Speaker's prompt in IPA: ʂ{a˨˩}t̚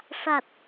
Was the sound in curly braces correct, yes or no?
yes